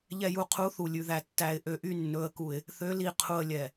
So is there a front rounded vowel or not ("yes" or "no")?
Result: yes